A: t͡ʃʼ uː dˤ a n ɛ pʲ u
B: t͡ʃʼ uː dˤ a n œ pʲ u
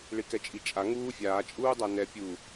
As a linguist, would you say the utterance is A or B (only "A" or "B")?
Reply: A